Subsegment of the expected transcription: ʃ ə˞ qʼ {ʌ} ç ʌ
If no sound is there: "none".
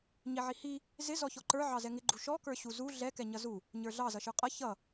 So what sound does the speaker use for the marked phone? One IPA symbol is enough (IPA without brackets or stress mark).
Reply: ʌ